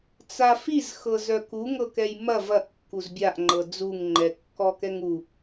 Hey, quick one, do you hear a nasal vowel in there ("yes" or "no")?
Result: no